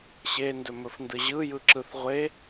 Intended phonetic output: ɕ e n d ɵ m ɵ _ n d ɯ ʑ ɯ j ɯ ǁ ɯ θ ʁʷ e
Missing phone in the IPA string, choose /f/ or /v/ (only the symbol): f